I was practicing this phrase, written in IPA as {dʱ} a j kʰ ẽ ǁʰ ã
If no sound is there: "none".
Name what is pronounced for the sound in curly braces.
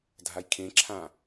dʱ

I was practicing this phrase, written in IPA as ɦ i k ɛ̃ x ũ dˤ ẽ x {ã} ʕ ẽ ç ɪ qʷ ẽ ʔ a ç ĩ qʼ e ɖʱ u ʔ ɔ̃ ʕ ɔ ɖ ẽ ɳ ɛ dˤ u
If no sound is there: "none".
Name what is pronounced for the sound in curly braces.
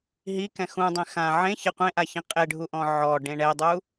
ã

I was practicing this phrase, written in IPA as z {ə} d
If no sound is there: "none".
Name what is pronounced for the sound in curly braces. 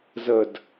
ə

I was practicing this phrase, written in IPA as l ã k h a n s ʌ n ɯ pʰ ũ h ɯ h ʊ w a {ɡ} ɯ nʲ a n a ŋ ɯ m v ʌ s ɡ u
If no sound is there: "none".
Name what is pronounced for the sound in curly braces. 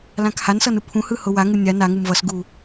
ŋ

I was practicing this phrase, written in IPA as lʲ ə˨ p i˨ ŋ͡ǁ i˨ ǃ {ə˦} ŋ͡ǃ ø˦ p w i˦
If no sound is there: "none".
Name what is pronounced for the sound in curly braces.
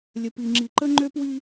ə˦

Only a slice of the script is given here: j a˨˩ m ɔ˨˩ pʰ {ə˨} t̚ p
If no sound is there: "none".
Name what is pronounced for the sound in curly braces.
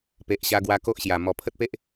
ə˦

